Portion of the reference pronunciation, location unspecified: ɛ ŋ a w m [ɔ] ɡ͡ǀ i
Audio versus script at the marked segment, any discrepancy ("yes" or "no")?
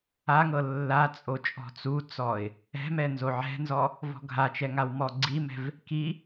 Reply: no